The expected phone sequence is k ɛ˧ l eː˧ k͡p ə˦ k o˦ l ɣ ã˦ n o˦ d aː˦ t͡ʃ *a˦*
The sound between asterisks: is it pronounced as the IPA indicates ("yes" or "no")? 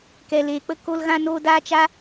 yes